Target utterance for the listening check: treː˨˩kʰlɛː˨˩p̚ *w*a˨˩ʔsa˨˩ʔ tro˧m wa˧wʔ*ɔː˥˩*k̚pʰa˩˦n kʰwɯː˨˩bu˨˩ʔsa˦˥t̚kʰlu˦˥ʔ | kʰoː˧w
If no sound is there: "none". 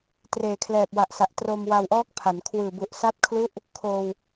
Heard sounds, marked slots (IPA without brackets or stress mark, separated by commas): w, ɔː˦˥